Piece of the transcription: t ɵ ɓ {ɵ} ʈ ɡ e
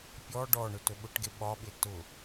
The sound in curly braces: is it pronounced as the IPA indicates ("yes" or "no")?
no